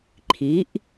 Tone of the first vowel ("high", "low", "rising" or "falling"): rising